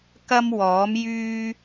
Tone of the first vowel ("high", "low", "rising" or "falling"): high